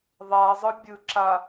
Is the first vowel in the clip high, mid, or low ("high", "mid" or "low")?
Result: low